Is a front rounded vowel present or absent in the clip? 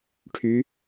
present